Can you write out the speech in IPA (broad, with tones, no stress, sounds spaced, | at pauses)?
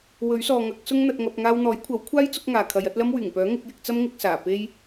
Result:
w ɵ˨˥ ɥ s ɔː˨ ŋ ɐ˨˥ k̚ s ʊ˥ ŋ n̪ ɐ˧ t̚ ŋ ɐ˧ p̚ ŋ aː˧ w n̪ ɔː˨˥ j kʷʰ ɐ˨˥ w kʷʰ aː˥ j t͡s ʊ˥ k̚ ŋ aː˨ kʰ ɐ˨˧ j ɐ˨˥ t̚ l ɐ˥ m w yː˨˩ ŋ p œː˨˥ ŋ ɪ˨˥ k̚ j ɪ˧ k̚ t͡s ɐ˥ m ŋ ɪ˧ k̚ s aː˨˩ p e˥ j